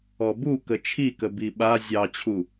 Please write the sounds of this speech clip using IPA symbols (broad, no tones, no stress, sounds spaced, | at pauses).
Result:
ɔ b u k ə t͡ʃʰ i k ə b i ɓ a zʲ ɑ t͡ɕʰ u